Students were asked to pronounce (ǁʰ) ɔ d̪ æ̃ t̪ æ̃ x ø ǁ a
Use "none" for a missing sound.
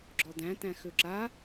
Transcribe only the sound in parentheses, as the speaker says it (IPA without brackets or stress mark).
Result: ɡ͡ǁ